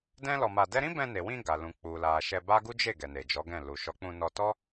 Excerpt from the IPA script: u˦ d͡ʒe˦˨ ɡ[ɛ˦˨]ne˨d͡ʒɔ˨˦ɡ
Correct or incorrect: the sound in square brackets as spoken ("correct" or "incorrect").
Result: incorrect